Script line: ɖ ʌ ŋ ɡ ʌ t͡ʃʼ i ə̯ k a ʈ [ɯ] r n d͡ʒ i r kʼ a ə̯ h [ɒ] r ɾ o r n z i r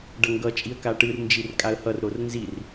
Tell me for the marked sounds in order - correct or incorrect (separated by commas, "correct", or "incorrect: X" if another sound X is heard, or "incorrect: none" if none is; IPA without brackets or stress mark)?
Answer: correct, incorrect: ʌ